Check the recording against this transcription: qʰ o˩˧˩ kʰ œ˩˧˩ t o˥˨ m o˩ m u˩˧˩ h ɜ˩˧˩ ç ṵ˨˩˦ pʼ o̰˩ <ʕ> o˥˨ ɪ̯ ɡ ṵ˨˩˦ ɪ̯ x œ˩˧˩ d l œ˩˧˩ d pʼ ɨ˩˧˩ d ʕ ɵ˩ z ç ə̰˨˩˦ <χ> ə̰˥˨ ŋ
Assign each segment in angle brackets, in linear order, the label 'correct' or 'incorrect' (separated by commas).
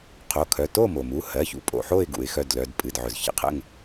incorrect, incorrect